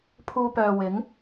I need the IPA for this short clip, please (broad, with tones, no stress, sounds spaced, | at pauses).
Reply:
pʰ uː˧ p œː˨ w ɪ˨˥ ŋ